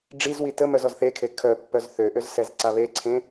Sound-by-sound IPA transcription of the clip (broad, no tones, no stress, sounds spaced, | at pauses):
ɖ͡ʐ i z w i t ə m œ z ɔ z θ e kʰ e kʰ œ pː œ z θ ø ʔ ø z s ɛ z ǀ a β e ǀʰ ẽ